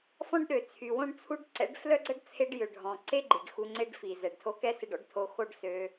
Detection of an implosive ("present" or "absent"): present